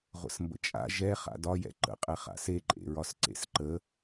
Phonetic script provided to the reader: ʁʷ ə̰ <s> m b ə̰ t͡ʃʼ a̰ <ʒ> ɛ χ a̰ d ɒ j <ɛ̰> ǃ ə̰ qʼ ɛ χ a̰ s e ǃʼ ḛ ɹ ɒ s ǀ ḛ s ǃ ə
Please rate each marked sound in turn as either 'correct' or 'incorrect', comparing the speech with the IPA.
correct, correct, correct

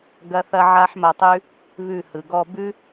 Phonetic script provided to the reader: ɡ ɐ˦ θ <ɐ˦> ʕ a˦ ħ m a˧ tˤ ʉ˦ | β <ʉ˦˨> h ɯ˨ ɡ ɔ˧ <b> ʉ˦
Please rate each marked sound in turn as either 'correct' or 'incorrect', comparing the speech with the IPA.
correct, correct, correct

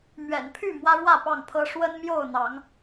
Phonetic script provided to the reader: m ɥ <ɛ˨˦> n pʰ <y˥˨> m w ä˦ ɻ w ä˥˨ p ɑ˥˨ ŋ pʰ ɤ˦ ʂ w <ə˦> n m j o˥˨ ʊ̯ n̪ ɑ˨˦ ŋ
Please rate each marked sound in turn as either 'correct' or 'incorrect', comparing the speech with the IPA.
incorrect, correct, correct

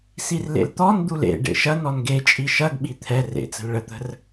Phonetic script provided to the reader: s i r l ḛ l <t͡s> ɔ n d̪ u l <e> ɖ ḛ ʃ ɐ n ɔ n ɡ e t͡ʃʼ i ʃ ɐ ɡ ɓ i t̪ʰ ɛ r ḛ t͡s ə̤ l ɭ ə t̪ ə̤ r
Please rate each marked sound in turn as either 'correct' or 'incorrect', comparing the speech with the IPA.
incorrect, incorrect

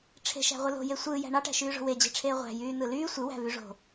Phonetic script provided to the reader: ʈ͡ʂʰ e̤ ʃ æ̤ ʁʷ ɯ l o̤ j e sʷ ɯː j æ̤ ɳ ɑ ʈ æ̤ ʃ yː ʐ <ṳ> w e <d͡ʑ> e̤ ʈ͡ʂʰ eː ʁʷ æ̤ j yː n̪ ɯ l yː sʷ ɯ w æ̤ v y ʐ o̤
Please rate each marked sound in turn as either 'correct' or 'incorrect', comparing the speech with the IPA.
incorrect, correct

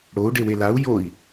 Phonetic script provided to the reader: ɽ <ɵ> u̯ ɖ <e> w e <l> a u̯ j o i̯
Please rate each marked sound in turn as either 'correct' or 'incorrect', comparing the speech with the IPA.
incorrect, correct, correct

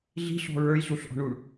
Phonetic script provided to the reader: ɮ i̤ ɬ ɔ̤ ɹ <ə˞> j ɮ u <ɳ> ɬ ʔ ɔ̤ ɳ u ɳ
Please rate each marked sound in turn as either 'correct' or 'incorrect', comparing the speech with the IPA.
correct, incorrect

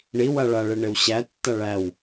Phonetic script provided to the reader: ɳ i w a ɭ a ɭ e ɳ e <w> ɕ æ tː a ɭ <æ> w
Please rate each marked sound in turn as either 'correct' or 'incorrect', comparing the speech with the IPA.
correct, correct

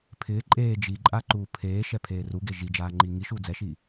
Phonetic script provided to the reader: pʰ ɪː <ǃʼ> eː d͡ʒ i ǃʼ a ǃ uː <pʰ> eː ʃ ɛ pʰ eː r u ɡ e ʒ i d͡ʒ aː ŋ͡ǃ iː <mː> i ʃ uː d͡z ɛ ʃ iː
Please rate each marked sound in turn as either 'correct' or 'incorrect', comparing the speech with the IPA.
correct, correct, incorrect

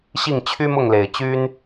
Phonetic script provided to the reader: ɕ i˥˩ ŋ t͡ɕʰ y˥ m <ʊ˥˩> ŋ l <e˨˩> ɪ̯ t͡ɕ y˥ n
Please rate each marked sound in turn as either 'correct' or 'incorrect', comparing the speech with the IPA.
correct, correct

